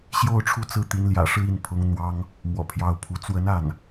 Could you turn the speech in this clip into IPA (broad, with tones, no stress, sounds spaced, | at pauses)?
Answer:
ɕ j o˥˧ ʊ̯ ʈ͡ʂʰ u˥˧ t͡s ɹ̩˥˩ t̪ i˧˥ n l j ä̰˨˩ ʂ ɻ̩˥˧ i˥˩ n pʰ ʊ˧˥ ŋ n̪ w ɑ˥ ŋ | m w ɔ̰˨˩ pʰ j ɑ˧˥ ʊ̯ pʰ u˧˥ t͡s w ə˧˥ n a˥˩ n